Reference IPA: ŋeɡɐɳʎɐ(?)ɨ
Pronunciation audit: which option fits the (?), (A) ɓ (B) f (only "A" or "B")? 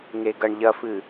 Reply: B